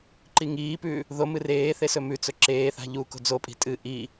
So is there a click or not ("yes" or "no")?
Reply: yes